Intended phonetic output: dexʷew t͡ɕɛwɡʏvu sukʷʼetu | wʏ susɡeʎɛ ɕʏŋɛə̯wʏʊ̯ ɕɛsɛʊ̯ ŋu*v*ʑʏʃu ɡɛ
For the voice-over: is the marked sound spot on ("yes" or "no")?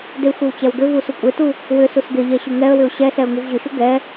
yes